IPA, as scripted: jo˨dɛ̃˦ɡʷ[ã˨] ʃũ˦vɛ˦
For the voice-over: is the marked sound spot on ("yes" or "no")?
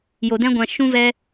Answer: no